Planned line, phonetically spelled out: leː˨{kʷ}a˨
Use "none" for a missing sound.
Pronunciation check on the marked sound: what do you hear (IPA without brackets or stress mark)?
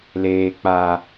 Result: k͡p